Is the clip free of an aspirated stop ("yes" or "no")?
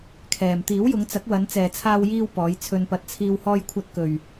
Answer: no